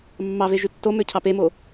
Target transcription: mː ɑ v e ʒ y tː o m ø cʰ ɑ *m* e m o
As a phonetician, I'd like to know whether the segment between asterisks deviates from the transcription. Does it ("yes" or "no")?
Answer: yes